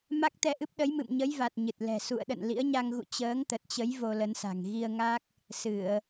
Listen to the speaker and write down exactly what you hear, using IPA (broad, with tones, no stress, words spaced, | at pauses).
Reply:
ma˦˥k̚t̪ɛ˧ʔɨ˦˥p̚ ɗə˨˦jmɨ̰˧˨mɲə˨˦jva˨˩t̚ ɲɨ˨˩t̚lɛ̤˨˩ sṵ˧˨ə̯ɗə̰˧˨n lḭ˧˥ə̯ɲa˧ŋɣṵ˧˨ t͡ɕəː˨˦ŋt̪ə˨˩t̚t͡ɕə˨˦j vo˧lə˨˦nsa̤˨˩ŋ ɣi˧ə̯ŋa˦˥k̚ | sɨ˧˩˨ə̯